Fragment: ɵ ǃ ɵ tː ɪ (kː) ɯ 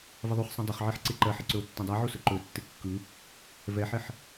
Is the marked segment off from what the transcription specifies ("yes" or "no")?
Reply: no